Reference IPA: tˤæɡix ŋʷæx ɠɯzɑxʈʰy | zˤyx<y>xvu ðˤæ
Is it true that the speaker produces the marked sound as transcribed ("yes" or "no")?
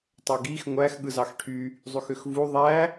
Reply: no